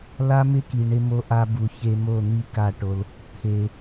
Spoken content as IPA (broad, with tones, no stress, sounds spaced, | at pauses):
l a˦ m ɪ˦ k i˨ ɳ ɪ˧ m o˧ ʔ a˧ b u˨ ç e˧ m o˦˨ n̪ i˦ k a˦˨ ʈ o˧ l | t̪ʰ e˨